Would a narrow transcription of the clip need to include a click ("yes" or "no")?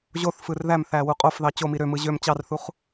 no